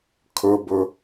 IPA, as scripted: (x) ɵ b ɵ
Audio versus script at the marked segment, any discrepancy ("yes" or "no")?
yes